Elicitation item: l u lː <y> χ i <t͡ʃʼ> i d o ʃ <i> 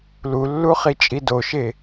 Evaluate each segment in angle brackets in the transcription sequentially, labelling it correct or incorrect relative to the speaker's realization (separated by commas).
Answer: incorrect, correct, incorrect